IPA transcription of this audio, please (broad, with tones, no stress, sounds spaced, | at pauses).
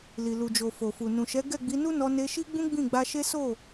l i˨ l u˨ d͡ʒ o˨ f o˨ f u˨ n ũ˨ ʃ ɛ˨˦ ɡ ɛ˦˨ ɡ͡b i˨˦ n u˦ n ɔ˧ n e˧ ʃ i˦ ɡ͡b ũ˦ ɡ͡b ĩ˦˨ ɡ͡b a˧ ʃ e˦ s o˦˨